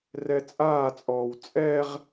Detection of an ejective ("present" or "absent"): present